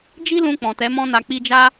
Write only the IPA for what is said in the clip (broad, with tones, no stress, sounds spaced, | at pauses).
d͡ʒ i˦ l ũ˧ k͡p ɔ̃˨ t ɛ˨˦ m ɔ̃˦ n a˧ k͡p i˦ d͡ʒ a˦